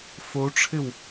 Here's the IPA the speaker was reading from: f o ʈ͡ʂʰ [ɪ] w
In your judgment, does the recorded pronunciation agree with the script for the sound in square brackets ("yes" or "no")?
yes